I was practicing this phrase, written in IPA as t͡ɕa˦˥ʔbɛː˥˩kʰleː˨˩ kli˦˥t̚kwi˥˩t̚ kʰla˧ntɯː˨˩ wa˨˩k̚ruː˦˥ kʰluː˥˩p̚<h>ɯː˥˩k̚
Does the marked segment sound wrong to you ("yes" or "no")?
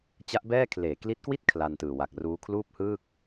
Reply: no